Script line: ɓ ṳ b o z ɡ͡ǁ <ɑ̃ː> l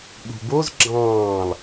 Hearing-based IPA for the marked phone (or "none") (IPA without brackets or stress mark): ɑ̃ː